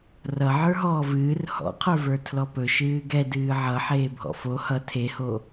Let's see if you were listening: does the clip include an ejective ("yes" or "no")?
no